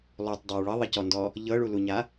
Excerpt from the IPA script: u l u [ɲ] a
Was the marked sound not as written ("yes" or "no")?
no